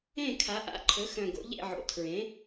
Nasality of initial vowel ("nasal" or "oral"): nasal